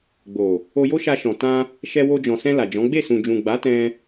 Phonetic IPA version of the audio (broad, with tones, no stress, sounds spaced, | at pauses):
ɡ͡b o˨ | o˧ j o˦ ʃ a˧ ʃ ɔ̃˨ t ã˧ | ʃ ɛ˧ w o˧ d͡ʒ ɔ̃˨ s ɛ̃˧ l a˨ d͡ʒ ɔ̃˨˦ ɡ͡b e˦˨ s ũ˨ d͡ʒ ũ˨ ɡ͡b a˨˦ t ɛ̃˧